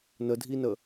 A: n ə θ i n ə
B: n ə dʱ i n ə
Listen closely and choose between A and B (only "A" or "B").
B